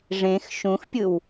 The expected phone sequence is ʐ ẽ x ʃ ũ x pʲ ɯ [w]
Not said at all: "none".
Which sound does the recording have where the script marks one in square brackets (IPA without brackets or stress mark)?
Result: w